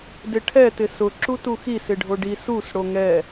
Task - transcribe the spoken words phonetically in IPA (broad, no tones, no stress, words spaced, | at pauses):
dɪʈʰɛ tɪsʊ ǁutuxi sɪɖʱoɖi sus ɽoŋɛ